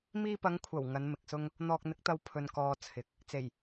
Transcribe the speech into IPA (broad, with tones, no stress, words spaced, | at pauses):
miː˧pɐ˨˧ŋkʷʰɐ˨˩w ŋɐ˨˧nmɪ˨k̚sʊ˥ŋ | n̪ɔː˨k̚n̪ɪ˨˥k̚t̪ɐ˧w pʰɵ˧nkɔː˧t͡sʰɪ˨˥k̚ | t͡se˨˩j